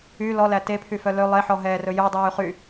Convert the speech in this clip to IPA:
y l ɔ l æ t e pʰ y f œ l ø lˠ e ħ ɔ ɦ ɛː r ɵ j œ dˤ yː χ y

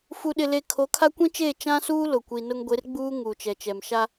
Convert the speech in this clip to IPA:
f u˨ ɗ ɪ˨ l e˨ kʰ o˨˦ kʰ a˦ kʷ ĩ˦ t͡ʃ eː˦˨ t͡ʃ ã˦ s uː˦ l ʊ˨ kʷ i˨ n ʊ˦ ŋ ɡʷ e˨˦ r ɡ͡b uː˦ ŋ uː˨ t͡ʃ ɛ˨ t͡ʃ ɛ˨ m ʃ a˦

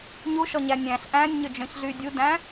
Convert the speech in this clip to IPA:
ɲ u ʃ ɔ ɲ æ nʲ æ̃ ɬ ʔ æ̃ nʲ ɲ ø d͡ʒ œ̃ ç ɮ y dʲ u d æ̃

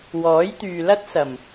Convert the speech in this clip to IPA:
w ɔː˨˥ j t̪ yː˨ l ɐ˥ t̚ s ɐ˨˩ m

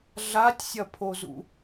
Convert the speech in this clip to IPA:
ɮ a tʲ sʲ ɐ pʰ o z ṵ

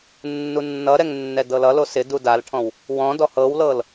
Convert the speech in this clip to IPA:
nː u nː ʌ ɾ ɛ ŋ nː ɛ d ɤ l ʌ l o s ɪ d u d a l ʈʰ ɔ̃ w | w ɔ̃ d ɔ h ɤ w l ɤ l

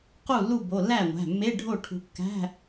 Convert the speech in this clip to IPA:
q u˥˩ lː u˥˩ b o˩˧˩ lː æ˥˩ ŋʷ æ̤˩˧˩ mː e˧˥˧ ɖʱ o˥˩ ʈʰ ṳ˨˦ kː æ̤˧˥˧

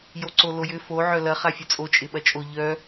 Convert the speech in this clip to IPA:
j o ǀ o l o j ʏ f o ʕ œ l ɐ χ a fʲ œ t͡sʼ o t͡ʃʼ ɪ ɓ ɐ t͡ʃʼ o ʎ œ

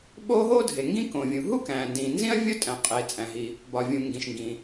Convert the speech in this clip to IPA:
ɓ oː˥ ɦ oː˥ dʱ e˩ ŋ ɡ ĩ˥ k õ˩ vʲ ũ˩ ɦ u˥ k æ̃ː˩ n d ĩ˩ n z ĩ˥ ɐ̯ vʲ o˥ tʼ æ̃˩ qʼ eː˩ t͡sʼ æ̃˩ ɦ i˩ | b ɒ˩ vʲ ũ˩ ŋ ɡ ĩ˩ ʃ ŋ ɡ ĩ˩

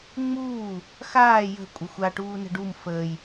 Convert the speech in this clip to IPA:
ŋ͡m uː | x aː j ə̤ kʷʼ ə xʷ a ʈ uː n ə̤ ɖ u m f əː j

